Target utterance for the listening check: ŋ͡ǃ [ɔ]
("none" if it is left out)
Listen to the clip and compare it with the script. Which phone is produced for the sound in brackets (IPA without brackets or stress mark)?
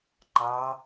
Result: ɑ